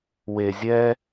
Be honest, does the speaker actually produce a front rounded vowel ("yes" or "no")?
no